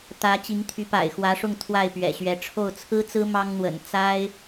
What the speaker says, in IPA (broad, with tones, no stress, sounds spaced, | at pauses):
t̪ ä˧˥ t͡ɕ i˧˥ ŋ t̪ʰ y˧˥ p a̰˨˩ ɪ̯ x w ä˧˥ ʂ ʊ˥˧ ŋ t̪ʰ w a˥˩ ɪ̯ p ɥ ɛ̰˨˩ ɕ ɥ ɛ˧˥ ʈ͡ʂʰ o˥˩ ʊ̯ t͡sʰ ɹ̩˥ t͡s ɹ̩˥ m ɑ˥ ŋ n̪ w ə̰˨˩ n t͡s a˥ ɪ̯